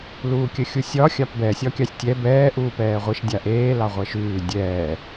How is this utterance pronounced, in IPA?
l uː kʲ ə xʲ u sʲ ɒ xʲ ɑ p b ɛ sʲ ɒ kʲ ɑ sʲ tʲ ɛ b ɛː ʔ uː p ɛː ʁʷ i ʃ dʲ a ʔ eː l ɑ ʁʷ ɛ ʃ ʉː dʲ ɛː

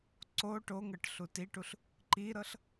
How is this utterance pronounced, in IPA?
ǀ o ʈ o ŋ ɤ ʈ ɬ u t i ʈ u ɬ | ǃ i ɾ ɤ ɬ

